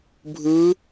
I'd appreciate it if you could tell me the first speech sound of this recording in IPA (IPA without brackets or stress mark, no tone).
bʱ